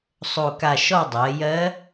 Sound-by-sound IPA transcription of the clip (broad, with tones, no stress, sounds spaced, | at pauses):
sˤ o˨˩ k a˨˩ ʃ ɔ˦˨ dˤ ɜ˩˧ j ɜ˧˥